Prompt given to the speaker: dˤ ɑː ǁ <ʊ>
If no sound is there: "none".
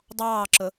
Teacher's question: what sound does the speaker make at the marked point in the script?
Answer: ʊ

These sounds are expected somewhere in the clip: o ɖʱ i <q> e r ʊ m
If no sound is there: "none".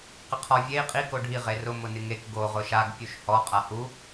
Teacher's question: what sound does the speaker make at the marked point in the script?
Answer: ʁ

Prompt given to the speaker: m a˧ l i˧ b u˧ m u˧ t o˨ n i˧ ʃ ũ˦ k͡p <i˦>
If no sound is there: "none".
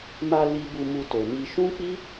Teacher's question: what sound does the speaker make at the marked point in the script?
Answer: i˦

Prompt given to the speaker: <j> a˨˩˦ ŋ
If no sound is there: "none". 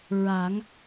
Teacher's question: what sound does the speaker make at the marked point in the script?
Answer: ɹ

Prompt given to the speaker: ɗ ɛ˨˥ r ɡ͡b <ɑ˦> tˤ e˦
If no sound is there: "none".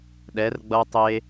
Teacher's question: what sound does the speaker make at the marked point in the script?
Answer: ʌ˦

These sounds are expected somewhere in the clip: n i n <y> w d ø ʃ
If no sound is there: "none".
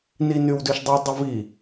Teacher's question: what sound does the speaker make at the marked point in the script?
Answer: y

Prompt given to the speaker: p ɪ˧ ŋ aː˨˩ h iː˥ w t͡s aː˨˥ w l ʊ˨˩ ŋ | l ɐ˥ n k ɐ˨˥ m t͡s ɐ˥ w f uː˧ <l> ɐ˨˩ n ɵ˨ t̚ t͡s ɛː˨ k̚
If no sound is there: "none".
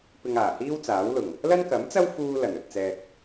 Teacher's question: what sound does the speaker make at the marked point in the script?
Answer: l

